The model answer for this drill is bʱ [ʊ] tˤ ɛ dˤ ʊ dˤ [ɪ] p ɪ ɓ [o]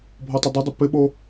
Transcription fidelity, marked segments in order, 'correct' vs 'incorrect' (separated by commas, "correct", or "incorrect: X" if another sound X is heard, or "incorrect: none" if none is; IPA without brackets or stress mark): incorrect: ɔ, correct, correct